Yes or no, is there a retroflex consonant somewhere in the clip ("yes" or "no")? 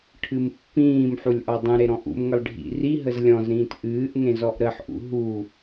yes